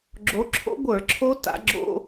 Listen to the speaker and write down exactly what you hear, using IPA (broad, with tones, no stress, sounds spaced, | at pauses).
ɡ͡ǁ o˨˦ ǁʰ o̰˦˥ ɡʷ ə˞˧˩˧ ǁʰ o˦˥ t a̰˨˦ ɡ͡ǁ o̰˧˥˧